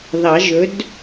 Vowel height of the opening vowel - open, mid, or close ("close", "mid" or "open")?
open